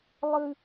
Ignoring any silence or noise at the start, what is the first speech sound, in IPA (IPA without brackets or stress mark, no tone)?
lˠ